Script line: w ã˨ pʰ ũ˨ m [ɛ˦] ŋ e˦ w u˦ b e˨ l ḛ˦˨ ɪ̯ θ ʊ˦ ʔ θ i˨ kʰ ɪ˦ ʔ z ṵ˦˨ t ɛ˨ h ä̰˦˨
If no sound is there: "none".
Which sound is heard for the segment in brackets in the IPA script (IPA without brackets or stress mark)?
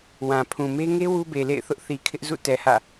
e˦